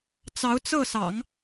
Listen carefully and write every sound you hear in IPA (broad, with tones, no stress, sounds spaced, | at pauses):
t͡s ɑ˧˥ ʊ̯ t͡s ɤ˥˩ s ɑ̰˨˩˦ ŋ